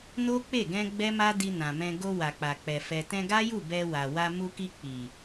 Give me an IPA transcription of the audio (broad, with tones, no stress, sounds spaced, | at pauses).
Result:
n o˦ k͡p e˦˨ ɡ ɛ̃˧ ɡ͡b ɛ˦ m a˦ d i˧ n ã˨ m ɛ̃˧ ɡ o˧ w a˨ k͡p a˨ k͡p ɛ˨ f ɛ˨ t ɛ̃˧ ɡ a˦ j u˦˨ b ɛ˧ w a˨ w a˧ m u˧ k i˧ k͡p i˨